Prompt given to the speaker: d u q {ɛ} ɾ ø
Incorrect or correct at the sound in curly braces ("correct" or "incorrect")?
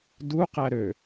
incorrect